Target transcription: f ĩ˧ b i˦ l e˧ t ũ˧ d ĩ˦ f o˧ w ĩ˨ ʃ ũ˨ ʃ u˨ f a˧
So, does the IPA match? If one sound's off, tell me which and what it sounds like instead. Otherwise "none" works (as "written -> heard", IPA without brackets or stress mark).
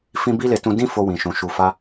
none